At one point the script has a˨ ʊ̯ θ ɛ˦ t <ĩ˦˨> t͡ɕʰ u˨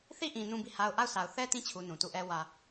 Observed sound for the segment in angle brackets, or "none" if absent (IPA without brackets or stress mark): ĩ˦˨